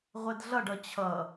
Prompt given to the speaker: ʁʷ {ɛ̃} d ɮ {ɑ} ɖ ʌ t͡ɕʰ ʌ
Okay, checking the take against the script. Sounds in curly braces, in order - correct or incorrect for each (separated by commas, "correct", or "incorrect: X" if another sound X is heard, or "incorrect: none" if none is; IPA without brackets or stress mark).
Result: incorrect: ɛ, incorrect: ʌ